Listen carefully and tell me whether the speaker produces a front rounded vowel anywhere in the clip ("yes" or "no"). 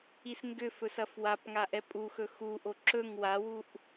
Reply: yes